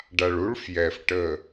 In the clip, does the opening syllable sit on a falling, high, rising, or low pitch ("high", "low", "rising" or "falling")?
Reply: low